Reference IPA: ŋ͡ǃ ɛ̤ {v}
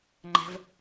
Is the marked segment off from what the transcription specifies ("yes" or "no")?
no